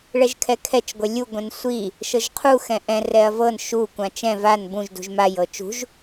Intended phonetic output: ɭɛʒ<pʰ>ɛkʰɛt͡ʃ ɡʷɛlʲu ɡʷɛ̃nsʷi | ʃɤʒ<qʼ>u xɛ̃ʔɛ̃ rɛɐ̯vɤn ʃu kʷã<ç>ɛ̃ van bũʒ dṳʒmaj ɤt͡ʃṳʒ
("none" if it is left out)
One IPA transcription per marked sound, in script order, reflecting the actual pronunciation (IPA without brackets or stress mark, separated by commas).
kʰ, qʰ, t͡ʃ